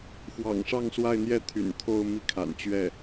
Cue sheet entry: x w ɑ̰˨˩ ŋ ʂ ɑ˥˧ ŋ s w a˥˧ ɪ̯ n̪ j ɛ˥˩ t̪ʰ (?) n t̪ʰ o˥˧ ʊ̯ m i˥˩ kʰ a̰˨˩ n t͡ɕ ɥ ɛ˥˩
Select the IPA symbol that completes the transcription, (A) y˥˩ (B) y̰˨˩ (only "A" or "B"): B